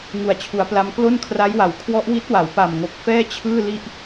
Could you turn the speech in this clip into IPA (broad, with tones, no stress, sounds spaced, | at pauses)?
ŋ u˨˩ a̯ t͡ɕʰ u˩˦ a̯ p l a˦˥ m k l o˥˩ n kʰ r a˦˥ j w a˩˦ w kʰ w ɔ˦˥ ʔ w i˦˥ t̚ w a˩˦ w p a˨˩ m ŋ o˨˩ k̚ f ɛː˥˩ t͡ɕʰ ɯː˥˩ l i˥˩ ʔ